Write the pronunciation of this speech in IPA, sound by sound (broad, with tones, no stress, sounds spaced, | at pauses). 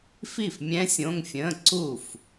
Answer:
f i˥˩ f mʲ ɛ̃˦˥ sʲ õ˧˥˧ ŋ fʲ ə̃ː˧˥˧ ǀ u˥˩ f